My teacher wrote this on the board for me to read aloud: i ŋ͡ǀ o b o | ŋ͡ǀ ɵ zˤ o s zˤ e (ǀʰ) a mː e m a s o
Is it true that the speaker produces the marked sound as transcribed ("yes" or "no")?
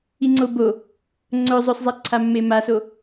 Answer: yes